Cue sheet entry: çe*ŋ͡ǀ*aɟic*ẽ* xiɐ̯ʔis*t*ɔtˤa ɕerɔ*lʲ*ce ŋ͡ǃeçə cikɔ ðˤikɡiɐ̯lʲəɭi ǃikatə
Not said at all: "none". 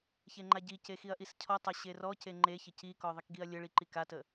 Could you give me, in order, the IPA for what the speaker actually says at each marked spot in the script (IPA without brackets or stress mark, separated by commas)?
ŋ͡ǃ, e, cʰ, none